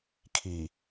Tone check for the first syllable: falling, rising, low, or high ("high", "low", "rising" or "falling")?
low